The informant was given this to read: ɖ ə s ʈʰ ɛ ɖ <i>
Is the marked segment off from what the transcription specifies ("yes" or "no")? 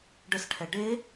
yes